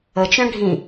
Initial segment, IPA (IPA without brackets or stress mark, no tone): ə